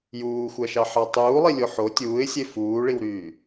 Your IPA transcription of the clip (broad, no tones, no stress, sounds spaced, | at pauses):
j uː xʷ æ ʃ ɑ ħ ɑ tˤ uː lˠ i lʲ o ħ o tʲ uː ɪ̯ sʲ e f uː ɭ i w ɾ yː